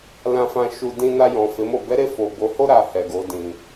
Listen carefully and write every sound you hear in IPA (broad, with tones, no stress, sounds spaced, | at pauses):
l ã˨ f ã˨ ʃ u˨ d ĩ˧ n a˧ j ɔ̃˨ f e˨˦ m o˦˨ b ɛ˨˦ ɾ e˧ f o˨ b o˨˦ h o˦ ɾ a˧ h ɛ˨ ɡ o˨˦ d ĩ˧